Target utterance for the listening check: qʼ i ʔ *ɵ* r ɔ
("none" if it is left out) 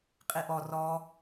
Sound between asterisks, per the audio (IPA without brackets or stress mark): ɔ